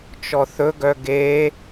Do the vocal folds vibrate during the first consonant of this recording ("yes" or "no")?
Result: no